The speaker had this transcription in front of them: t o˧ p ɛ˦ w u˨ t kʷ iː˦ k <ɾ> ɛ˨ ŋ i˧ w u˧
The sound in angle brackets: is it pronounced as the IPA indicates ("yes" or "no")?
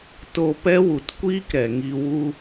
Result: yes